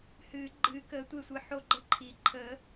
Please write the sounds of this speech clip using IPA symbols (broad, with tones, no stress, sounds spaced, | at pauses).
h ɨː˨˩˦ ɡ͡ǃ ɨː˨˩˦ k əː˨˩˦ tʷ e˦˨ sʷ ɨ˨˩˦ ħ o˦˨ ɡ͡ǃ ə˦˨ ǃʰ i˨˩˦ ǃʰ ə˨˩˦